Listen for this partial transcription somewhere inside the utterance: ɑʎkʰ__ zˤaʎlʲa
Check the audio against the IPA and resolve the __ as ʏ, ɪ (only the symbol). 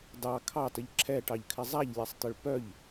ɪ